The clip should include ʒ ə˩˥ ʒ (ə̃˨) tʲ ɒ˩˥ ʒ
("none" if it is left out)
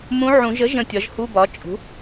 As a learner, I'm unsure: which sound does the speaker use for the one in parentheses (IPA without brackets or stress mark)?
ə̃˨